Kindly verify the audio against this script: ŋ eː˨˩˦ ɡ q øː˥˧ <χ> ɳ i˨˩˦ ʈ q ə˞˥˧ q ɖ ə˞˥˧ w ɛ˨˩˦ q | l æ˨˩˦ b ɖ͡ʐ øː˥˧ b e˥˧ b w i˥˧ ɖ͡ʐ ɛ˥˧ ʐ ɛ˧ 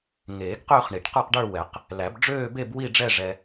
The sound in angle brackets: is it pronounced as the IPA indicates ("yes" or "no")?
yes